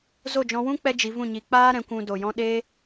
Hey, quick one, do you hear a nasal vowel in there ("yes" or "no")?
yes